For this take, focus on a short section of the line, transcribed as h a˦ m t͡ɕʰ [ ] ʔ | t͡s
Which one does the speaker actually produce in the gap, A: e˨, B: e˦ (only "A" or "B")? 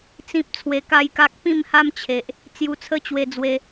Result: A